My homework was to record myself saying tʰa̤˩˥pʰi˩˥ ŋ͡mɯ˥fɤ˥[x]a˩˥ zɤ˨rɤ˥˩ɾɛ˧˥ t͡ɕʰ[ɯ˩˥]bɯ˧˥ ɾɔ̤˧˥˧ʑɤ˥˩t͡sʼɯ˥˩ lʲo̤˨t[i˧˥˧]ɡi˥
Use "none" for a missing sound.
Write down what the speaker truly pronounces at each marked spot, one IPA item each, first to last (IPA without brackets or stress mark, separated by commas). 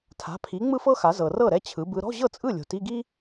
x, ɯ˩˥, i˧˥˧